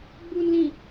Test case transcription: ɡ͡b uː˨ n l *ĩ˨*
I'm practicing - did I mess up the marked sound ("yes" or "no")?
no